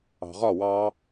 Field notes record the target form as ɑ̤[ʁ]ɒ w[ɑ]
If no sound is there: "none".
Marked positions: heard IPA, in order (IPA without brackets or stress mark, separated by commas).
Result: ʁ, ɑ